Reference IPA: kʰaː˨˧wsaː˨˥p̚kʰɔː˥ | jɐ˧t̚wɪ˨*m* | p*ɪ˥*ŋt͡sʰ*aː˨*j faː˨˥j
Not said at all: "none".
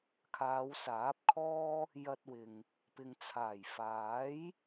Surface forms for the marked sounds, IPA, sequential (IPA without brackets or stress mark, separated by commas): ŋ, ɪ˨, aː˨˩